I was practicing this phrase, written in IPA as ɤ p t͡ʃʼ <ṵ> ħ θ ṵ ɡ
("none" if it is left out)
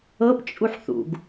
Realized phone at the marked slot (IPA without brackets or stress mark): u